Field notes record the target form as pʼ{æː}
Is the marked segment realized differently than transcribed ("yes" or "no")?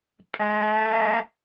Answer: no